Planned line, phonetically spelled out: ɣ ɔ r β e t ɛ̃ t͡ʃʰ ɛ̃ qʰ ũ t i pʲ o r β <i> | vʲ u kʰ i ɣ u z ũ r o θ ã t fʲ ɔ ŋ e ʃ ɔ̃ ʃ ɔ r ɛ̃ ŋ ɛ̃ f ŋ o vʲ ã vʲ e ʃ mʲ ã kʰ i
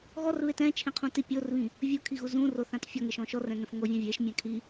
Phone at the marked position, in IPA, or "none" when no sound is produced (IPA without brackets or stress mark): ĩ